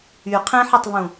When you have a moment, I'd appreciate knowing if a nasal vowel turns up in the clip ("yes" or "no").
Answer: yes